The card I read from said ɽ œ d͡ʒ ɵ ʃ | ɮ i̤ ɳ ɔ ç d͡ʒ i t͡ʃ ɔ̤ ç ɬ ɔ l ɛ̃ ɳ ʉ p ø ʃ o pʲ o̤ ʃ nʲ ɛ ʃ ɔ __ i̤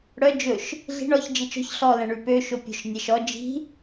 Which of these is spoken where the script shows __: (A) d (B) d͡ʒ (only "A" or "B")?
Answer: B